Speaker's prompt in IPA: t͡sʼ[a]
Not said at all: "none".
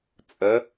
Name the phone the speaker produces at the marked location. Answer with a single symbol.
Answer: ə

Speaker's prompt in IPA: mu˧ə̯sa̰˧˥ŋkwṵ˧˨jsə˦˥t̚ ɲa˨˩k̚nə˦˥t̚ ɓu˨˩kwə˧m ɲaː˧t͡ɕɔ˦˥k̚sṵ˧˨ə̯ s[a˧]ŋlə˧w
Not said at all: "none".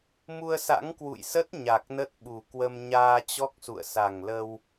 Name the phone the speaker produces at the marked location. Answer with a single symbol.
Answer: a˨˩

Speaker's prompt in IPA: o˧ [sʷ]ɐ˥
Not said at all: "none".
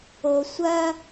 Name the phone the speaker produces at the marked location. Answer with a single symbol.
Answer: sʷ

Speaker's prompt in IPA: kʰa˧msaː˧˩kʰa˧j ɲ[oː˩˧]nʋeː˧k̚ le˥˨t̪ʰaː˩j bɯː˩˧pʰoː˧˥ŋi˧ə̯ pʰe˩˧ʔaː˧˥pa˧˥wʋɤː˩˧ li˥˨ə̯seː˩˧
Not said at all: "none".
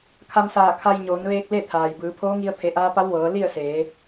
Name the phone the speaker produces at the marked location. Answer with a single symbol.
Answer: oː˩˧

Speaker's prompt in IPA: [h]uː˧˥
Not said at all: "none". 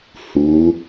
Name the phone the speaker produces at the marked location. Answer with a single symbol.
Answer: h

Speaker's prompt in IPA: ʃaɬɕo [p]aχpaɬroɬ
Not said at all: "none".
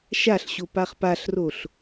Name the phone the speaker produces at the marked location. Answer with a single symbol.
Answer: p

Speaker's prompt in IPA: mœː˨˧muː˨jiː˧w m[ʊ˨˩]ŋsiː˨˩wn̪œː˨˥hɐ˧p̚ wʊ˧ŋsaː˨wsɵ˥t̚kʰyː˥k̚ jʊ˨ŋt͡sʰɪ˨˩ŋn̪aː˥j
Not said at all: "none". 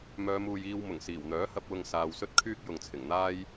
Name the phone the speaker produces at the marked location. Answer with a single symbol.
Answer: ʊ˨˩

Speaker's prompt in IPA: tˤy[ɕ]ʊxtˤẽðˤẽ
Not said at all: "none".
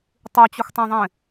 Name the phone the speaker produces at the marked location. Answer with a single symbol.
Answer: t͡ɕ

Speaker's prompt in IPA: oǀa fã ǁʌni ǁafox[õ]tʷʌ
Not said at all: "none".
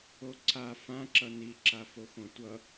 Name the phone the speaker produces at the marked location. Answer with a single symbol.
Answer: õ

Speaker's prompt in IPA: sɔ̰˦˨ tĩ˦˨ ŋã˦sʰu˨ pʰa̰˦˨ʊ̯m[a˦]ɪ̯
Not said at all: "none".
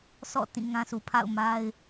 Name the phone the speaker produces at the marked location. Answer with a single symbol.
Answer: a˦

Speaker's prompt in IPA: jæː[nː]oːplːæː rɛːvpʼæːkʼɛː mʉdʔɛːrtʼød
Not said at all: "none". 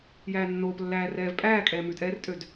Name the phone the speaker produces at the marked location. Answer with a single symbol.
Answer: nː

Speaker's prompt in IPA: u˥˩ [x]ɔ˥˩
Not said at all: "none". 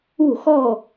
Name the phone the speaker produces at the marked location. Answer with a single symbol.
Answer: x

